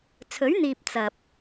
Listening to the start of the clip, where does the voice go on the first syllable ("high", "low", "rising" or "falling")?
rising